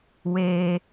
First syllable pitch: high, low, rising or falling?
high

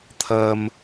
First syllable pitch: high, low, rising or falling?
low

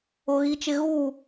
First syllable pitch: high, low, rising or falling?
high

